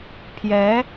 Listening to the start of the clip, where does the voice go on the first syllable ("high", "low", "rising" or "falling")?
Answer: rising